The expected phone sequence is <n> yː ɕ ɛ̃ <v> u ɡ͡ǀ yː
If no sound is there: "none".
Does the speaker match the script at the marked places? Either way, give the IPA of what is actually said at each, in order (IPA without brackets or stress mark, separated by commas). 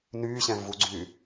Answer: n, v